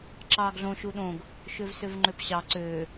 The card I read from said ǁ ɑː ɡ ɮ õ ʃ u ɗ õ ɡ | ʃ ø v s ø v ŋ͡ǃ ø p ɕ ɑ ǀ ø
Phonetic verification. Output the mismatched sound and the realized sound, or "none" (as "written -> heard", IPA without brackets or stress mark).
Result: none